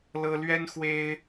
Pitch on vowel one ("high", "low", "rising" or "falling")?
high